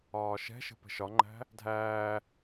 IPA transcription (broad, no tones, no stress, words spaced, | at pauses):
ɒːʃɛ̤ʃə̤ pə̤ʃɒŋ͡ǃæ̤ | dʱæː